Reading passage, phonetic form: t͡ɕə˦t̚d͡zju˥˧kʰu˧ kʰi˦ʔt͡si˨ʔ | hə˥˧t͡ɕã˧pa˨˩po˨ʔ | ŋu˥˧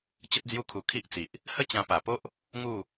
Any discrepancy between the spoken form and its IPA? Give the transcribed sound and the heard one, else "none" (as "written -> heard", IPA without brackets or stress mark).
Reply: o˨ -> o˦